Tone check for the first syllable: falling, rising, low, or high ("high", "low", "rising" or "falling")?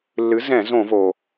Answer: rising